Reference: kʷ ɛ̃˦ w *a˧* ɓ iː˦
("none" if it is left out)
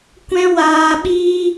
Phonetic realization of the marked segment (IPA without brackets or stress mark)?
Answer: aː˧